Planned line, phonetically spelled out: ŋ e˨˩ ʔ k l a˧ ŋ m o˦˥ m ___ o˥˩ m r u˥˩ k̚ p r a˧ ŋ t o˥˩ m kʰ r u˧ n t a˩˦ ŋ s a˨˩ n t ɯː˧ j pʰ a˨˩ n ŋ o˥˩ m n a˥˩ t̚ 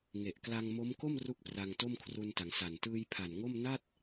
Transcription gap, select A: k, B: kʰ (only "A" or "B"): A